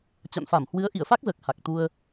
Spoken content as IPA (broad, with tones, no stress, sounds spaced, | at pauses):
t͡ɕ a̰˧˨ n f a˧˩ m h w ɨ˨˦ ə̯ ʔ i˧˩ ə̯ f a˦˥ k̚ z əː˨˩ k̚ h a˨˩ k̚ t̪ u˧ ə̯